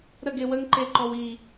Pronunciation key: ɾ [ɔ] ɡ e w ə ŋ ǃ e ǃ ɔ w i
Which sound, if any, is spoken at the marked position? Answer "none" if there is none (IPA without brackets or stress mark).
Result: ə